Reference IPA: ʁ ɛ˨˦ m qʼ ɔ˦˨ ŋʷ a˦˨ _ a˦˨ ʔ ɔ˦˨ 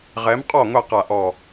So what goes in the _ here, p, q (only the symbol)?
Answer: q